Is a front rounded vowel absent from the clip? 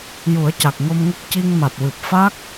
yes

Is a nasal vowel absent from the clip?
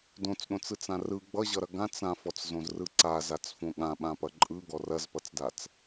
no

